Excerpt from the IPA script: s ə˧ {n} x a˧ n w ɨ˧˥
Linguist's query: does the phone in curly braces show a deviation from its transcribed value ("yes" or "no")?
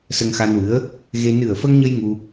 yes